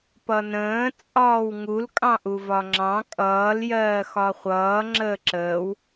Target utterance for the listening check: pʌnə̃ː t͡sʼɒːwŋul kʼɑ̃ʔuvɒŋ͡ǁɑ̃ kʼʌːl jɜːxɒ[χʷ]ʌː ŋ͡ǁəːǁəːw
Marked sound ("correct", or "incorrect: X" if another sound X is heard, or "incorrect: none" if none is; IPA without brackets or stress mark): correct